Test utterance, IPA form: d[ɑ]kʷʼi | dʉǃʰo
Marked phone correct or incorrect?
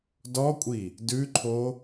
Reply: incorrect